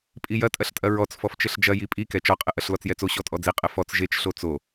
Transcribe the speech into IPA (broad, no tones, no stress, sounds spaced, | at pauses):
pʼ i j ɐ tʼ ɐ ɬ tʼ ɐ ɹ ɔ t͡s f ɔ f t͡ʃ ɘ ɬ d͡ʒ ɐ j i pʼ i k ɛ t͡ʃ ɔ qʼ ɘ ʔ ɐ ɬ l ɔ t͡s j ɛ t͡s o ɕ ɔ tʼ ɔ d͡z i qʼ ɘ f ɔ t͡s ʒ e t͡ʃ ɬ o t͡s o